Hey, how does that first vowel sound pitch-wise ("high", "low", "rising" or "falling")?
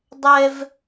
high